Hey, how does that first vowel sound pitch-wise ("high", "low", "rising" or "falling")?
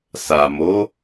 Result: low